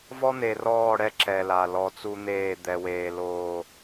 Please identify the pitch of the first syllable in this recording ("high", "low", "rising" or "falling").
high